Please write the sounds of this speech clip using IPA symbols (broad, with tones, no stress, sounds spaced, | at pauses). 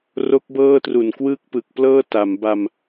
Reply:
r o˦˥ k̚ b ɤː˥˩ t r u˨˩ n k w ɯː˥˩ k̚ p ɯ˨˩ k̚ p l ɤː˥˩ t a˩˦ m b a˧ m